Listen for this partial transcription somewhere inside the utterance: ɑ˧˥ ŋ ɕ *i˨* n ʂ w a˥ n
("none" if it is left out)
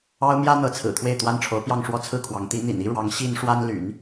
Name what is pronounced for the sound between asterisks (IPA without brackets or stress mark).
i˥